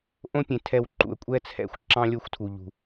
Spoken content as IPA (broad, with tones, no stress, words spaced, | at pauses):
ʔõ˦pʲẽ˨ tʰɛ˧wǃṵ˨ə̯kʷʼɛ˦t͡sʰɛ̰˧xʷ ǁɑ̃˦lʲo˦xʷtʰu˨ʎṳ˨